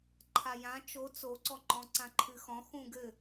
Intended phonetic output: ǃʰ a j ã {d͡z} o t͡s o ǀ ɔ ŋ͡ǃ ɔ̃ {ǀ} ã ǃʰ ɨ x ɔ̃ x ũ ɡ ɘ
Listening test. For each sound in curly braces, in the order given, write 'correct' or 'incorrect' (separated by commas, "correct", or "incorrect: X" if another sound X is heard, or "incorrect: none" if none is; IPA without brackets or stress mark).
incorrect: t͡ʃ, correct